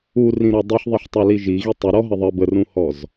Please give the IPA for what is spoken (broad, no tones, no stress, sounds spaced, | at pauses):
u r ĩ ɾ ɔ dˤ i ħ ðˤ i ħ tˤ ə˞ l i ʒ i ɣ i tˤ u ɾ ɔ ɦ ə ðˤ ə b ə r ũ h ɔ z